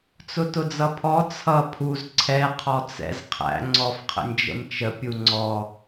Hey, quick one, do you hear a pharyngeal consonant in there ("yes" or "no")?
no